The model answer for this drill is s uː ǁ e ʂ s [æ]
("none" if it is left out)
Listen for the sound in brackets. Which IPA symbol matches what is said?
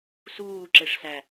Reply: æ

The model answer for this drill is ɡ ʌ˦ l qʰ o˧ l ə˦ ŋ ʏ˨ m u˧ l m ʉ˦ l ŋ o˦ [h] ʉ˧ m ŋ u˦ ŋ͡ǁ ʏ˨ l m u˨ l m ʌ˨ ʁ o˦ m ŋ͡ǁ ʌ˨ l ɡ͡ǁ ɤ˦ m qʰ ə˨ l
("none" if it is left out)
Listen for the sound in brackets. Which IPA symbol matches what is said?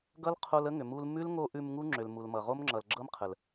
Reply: ʔ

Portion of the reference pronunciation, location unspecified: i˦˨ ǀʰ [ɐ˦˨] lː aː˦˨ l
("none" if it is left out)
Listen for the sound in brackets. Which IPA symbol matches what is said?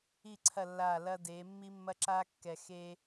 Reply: ɐ˦˨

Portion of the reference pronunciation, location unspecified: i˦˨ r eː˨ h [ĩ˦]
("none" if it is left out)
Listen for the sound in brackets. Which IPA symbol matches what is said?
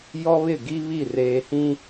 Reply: ĩ˦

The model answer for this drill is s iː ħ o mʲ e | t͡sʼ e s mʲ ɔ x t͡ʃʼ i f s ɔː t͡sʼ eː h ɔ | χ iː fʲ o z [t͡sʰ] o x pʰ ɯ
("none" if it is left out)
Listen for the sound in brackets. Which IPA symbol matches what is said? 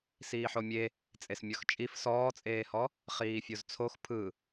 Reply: t͡sʰ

